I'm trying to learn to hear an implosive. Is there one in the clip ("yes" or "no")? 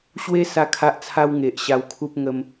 no